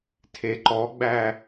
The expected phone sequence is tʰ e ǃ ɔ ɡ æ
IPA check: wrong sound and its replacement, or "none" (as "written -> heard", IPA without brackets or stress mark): ɡ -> ɡ͡b